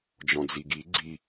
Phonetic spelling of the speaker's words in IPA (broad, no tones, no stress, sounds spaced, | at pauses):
d͡ʒ ɔ̃ d͡z i ɡ i ɡ͡ǀ i